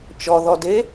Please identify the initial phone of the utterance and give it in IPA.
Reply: t͡ʃ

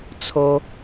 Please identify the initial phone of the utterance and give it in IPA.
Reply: t͡sʰ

